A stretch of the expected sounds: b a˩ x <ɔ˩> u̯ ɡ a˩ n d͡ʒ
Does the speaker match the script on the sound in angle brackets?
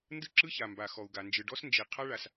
yes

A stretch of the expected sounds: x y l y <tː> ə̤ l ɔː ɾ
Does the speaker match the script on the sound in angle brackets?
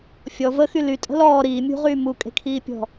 no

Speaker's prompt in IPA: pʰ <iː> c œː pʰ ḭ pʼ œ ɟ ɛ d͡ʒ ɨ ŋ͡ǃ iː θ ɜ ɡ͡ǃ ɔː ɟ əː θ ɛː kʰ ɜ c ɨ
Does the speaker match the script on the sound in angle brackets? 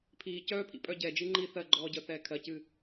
yes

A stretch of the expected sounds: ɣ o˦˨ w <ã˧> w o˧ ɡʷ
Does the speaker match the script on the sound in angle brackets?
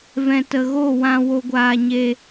yes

